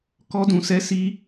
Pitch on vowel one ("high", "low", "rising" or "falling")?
high